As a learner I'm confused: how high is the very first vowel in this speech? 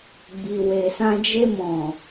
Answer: high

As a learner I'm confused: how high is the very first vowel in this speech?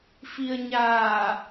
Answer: high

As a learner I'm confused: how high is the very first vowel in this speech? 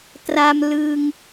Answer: low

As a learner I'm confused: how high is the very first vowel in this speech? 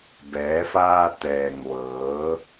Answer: mid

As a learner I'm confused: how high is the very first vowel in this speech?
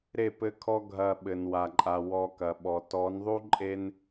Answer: mid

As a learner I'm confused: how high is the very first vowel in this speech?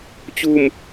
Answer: high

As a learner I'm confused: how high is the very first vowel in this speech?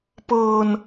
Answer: mid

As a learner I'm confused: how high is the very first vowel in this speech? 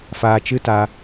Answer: low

